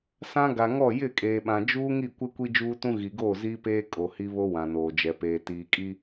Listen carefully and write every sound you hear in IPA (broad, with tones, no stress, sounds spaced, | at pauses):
s ã˦ ɡ a˨ ŋ ɔ˦˨ j ɪ˦˨ kʼ eː˨ ɓ ã˨ d͡ʒ uː˦ ŋ i˦˨ kʷ ɪ˦ kʷ i˦ d͡ʒ uː˦ t ũ˦ ɣ i˨ ɡ oː˦˨ z iː˦ p eː˦ kʼ o˨ h i˦ β o˦ w ã˨ n oː˨ d͡ʒ ɛ˨ p eː˨ t iː˨ kʼ i˦